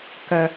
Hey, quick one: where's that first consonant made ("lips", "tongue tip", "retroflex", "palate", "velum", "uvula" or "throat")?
velum